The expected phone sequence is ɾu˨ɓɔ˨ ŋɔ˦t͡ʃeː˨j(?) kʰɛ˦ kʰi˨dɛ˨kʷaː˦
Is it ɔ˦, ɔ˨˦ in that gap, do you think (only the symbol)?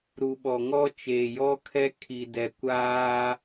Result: ɔ˦